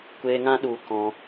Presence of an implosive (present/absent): present